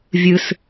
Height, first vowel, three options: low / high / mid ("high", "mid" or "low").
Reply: high